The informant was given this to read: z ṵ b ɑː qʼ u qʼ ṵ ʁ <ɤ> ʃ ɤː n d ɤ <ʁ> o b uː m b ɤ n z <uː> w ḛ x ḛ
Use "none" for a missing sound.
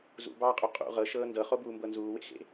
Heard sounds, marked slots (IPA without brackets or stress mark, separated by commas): ɤ, χ, uː